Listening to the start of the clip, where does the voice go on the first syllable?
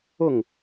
falling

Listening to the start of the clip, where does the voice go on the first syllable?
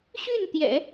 falling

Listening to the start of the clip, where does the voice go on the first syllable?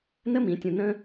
high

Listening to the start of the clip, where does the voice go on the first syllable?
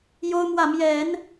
high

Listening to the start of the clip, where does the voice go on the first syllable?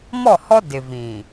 falling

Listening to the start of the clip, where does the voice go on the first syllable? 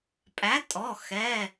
rising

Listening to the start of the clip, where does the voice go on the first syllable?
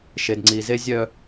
low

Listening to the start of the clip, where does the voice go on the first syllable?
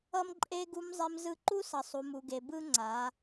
high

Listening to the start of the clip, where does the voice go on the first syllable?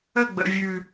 falling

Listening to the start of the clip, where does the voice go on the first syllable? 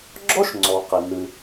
high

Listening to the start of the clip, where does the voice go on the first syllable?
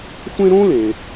high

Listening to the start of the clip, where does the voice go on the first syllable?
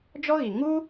high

